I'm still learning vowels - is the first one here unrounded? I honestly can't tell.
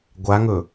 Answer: yes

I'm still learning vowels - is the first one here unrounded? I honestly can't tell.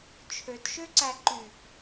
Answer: no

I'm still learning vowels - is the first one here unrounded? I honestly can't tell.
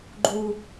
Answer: no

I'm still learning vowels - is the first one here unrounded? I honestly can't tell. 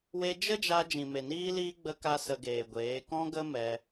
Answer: yes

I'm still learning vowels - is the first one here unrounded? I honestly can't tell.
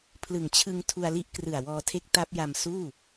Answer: yes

